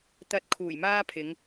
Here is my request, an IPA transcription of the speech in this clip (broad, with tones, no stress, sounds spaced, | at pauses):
t̪ ɐ˧ t̚ kʰ uː˨˩ j m aː˥ pʰ ɪ˨˧ ŋ